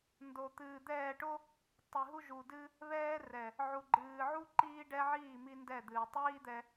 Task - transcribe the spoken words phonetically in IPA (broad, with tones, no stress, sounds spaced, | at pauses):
n d o˨ t̪ ɨː˨ d̪ ɛː˦˨ ʈ o˦ | tˤ i˨ ɦ u˦ ʒ u˨ d ɨ˦ | β ɛː˦ r ɛ˨ | ʕ u˨ ɡ͡ǃ ɨː˨ ʕ u˦ ǃ iː˦ ɖ ɛ˦ ʕ iː˦˨ m i˦ n d ɛ˦˨ d̪ ɨː˨ tˤ iː˦ d̪ ɛ˧